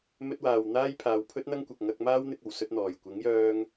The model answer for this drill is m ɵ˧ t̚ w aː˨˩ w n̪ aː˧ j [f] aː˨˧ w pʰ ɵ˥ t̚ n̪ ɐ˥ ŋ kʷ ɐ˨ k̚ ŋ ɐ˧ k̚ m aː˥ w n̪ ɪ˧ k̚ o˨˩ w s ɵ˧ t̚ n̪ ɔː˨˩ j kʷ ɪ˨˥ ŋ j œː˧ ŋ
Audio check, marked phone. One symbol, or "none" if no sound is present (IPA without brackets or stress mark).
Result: pʰ